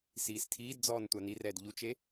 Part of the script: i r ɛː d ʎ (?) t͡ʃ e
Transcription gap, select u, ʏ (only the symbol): u